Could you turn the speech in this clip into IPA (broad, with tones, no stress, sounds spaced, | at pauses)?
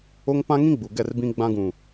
o˦ ŋ p ã˦ ŋ ĩ˦ ɡ͡b u˨ ɡ ɛ˦˨ r b ĩ˦ ɡ͡b ã˦ ɡ ũ˨